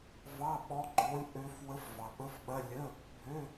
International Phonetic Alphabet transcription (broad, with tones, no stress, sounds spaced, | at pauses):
v ɑ˧˥˧ ɓ ɔ˧˥ ɡ͡ǃ o˧˥ lʲ ʔ ø˧˥ f w ə˧˥ f v ɑ˨ ɓ ə˧˥˧ f ɓ ɐ˧˥˧ lʲ ə˧˥˧ | bʱ ø˧˥˧